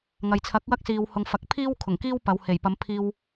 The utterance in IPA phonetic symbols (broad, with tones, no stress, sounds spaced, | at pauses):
ŋ ɐ˨ j t͡sʰ ɐ˨˥ k̚ w ɐ˥ k̚ s iː˨ w h ʊ˨ ŋ f ɐ˨ k̚ pʰ iː˥ w kʰ ʊ˨˩ ŋ k iː˥ w p ɐ˨˧ w h e˨˩ j p ɐ˨˧ m pʰ iː˧ w